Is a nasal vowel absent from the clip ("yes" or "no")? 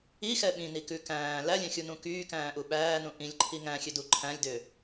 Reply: no